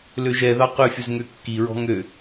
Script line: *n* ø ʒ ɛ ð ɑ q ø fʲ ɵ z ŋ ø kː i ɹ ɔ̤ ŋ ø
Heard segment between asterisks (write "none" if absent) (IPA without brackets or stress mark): l